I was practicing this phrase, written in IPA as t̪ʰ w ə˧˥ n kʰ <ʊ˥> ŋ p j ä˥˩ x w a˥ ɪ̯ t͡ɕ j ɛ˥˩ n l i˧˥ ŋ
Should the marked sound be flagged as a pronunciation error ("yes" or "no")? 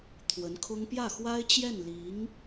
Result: no